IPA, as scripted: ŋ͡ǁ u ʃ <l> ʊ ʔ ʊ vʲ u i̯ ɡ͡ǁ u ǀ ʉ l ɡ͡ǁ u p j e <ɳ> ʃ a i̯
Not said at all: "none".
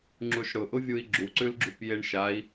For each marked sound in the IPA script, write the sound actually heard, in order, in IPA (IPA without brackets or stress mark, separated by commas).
ɽ, ɳ